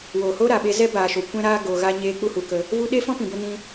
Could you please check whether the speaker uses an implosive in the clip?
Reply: yes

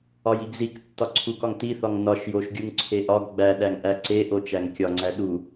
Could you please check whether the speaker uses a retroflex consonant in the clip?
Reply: no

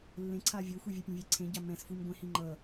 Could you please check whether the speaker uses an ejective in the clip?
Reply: no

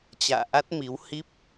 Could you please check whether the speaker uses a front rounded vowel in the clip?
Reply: no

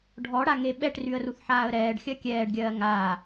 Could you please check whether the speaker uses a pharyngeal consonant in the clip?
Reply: yes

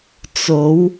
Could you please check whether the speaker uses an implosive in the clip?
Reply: no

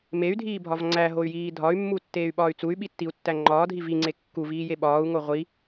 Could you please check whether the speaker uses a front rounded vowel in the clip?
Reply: yes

